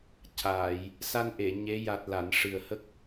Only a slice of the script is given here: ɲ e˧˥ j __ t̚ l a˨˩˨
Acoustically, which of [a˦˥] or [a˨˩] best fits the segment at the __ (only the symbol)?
a˨˩